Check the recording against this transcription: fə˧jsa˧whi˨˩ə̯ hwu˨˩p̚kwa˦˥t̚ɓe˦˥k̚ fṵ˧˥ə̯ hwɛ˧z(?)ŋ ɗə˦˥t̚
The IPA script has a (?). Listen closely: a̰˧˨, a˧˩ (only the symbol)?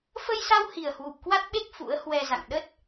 a̰˧˨